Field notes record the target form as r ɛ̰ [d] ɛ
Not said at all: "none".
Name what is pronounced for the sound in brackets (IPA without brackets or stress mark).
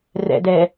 d